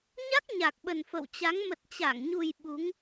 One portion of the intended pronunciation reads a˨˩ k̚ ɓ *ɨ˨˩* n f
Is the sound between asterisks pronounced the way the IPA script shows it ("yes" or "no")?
no